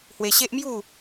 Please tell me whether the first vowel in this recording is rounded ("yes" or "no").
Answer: no